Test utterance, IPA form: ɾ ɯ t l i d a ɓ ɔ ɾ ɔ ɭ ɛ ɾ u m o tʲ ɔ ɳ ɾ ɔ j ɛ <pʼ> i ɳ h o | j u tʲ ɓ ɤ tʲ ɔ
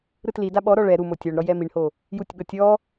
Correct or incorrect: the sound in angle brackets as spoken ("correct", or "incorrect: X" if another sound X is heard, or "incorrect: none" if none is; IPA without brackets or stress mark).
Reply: incorrect: m